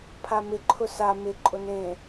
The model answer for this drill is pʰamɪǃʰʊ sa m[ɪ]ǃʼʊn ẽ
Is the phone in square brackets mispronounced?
no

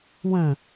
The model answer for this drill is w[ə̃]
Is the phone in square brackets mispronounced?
no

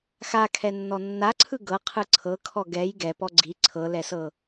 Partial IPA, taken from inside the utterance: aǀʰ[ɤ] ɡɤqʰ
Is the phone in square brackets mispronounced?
yes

